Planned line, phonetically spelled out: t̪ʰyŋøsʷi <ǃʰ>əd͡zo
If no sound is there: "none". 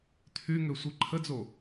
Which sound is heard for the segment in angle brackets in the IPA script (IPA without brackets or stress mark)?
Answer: ǃʰ